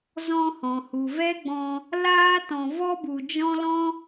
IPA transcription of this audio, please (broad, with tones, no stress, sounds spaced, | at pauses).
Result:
z ɔ̃˧ h ɔ̃˨ h u˨ v ɛ˦ ɡ͡b ɔ̃˧ | l aː˦ t ɔ̃˨ v ɔ˦ b u˨ d͡ʒ ɔ̃˦ l ɔ̃˦